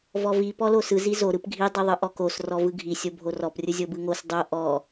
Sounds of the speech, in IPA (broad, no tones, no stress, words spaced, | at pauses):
vɔvi pɔlosɯ zizo ɾɯpɡʱi dˤiðˤɯʔɔkos rɔvɯɡʱi sʲobʱorɔp rʲɯzʲobɯŋos dˤo ʔɔ